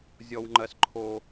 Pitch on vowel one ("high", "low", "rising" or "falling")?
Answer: high